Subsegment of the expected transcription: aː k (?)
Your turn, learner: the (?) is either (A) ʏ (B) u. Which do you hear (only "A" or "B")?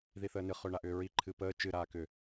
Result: A